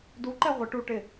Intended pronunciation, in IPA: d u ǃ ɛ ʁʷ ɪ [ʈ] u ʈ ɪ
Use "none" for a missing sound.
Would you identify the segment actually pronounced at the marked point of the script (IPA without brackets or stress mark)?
ʈ